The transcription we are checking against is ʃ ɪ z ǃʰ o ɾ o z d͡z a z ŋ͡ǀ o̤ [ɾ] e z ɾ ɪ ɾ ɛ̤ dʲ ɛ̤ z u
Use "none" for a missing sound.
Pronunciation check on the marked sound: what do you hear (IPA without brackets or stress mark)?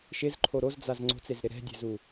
t͡s